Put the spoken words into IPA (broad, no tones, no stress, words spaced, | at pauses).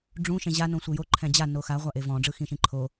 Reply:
ɖ͡ʐũ ʃẽʑa nõsʷejo ǃʰɛ̃d͡ʑa noxa ʁʷaʔevɔ̃ ɖ͡ʐɯxĩʃĩǃʰo